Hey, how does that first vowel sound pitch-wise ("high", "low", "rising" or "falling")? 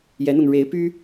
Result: rising